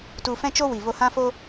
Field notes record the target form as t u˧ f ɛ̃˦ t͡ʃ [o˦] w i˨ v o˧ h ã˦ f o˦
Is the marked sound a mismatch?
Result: no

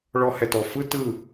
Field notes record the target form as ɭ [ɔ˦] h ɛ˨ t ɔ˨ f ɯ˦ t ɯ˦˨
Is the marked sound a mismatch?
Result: yes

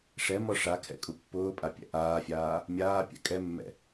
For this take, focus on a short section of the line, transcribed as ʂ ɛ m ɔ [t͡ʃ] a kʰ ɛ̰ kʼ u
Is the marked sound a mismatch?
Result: yes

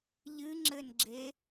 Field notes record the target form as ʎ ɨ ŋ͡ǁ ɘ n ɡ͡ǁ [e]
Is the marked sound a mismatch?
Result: no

